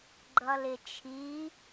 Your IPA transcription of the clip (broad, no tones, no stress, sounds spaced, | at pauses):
ɡ͡ǃ ʌ l ɪ t͡ʃʰ i